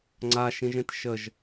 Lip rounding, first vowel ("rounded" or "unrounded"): unrounded